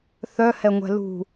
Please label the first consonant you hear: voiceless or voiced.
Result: voiceless